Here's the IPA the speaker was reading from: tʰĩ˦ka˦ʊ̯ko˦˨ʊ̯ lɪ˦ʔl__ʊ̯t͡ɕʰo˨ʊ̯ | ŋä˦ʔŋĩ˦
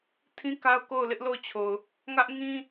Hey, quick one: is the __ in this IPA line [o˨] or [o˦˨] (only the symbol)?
o˦˨